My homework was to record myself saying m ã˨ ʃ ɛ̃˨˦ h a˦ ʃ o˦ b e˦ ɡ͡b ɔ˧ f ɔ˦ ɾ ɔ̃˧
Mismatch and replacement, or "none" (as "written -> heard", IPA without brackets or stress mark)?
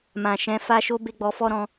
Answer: h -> f